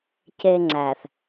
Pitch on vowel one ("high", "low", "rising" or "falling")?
high